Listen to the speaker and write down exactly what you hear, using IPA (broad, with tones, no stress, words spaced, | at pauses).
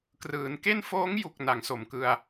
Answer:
krɯː˩˦nke˥˩n foː˦˥ŋju˨˩k̚ na˩˦ŋso˨˩mkɯ˧a̯